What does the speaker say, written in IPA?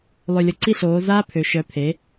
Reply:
lˠ ø˨˩ lʲ ə˨˩ ǀ i˥˩ ɬ oː˩˧ z aː˦ pʰ ø˩˧ ʃ œ˩˥ pʰ e˩˥

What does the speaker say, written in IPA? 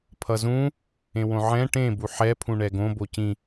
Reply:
pʰ ʌ z ũ | ẽ w õ ʕ ɛ̃ ʈ ẽ b u ħ ɛ pʰ ũ ɳ ɛ ɡ õ b o c ĩ

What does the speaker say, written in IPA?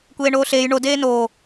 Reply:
kʷ eː ɳ oː ɬ eː j ɳ o d eː n oː

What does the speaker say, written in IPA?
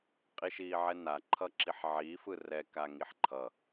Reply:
qʼ i ʃ iː ʕ ɛ n a ǃʰ ʌ ǁ i ħ ʕ iː f ɯ r ɛ k a ŋ i ħ ǃʰ ʌ

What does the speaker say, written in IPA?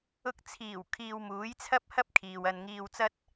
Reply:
ʊ˧ k̚ t͡sʰ iː˨˩ w kʰ iː˧ w m uː˨˥ j t͡sʰ ɐ˥ p̚ h ɐ˥ p̚ kʰ iː˨ w ɐ˧ n ŋ iː˧ w t͡s ɐ˥ t̚

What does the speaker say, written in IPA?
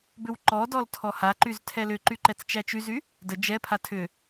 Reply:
b ʏ w ǃ ɔ d ɔ l tʰ ɔ h a ǃ y z tʰ ɛ l ʏ ǃ y ǃ ɛ t͡s t͡ʃ æ t͡ʃ y z y | d ə d͡ʒ ɛ pʰ a tʰ ʏ

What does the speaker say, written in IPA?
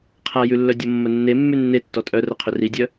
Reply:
qʰ a j ʉ lː œ dʲ o mː ə nː e mː ʉ nː e tː ɔ tʼ œ r ə qʰ ʏ r i dʲ œ

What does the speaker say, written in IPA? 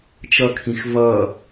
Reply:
t͡ʃ ʌ kʰ ĩ x v ʌ

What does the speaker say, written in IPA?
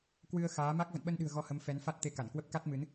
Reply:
k w ɨ˧ ə̯ x aː˨˦ m a˦˥ k̚ v ə̰˧˨ n ɓ ə˧ n ɗ ɨ̤˨˩ ə̯ ɣ ɔ˧ h ə˨˦ m f ɛ˨˦ n f a˦˥ t̚ t̪ e˧ k a˧˩ n k w ə˦˥ p̚ k a˦˥ t̚ m ɨ˨˦ n

